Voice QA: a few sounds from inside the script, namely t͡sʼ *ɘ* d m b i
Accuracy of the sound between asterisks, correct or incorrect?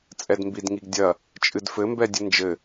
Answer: incorrect